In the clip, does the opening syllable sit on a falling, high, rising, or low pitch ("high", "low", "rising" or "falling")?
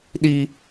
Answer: high